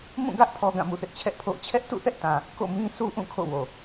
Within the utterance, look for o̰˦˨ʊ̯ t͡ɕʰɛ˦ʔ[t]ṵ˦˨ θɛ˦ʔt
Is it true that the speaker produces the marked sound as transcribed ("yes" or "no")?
yes